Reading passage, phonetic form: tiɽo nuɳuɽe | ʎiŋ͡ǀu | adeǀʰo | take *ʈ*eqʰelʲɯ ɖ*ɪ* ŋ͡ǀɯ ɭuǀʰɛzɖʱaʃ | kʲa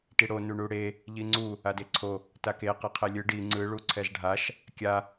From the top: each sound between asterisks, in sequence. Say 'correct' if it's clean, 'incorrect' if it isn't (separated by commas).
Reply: incorrect, incorrect